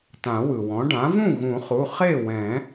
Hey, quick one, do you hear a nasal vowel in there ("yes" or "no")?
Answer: yes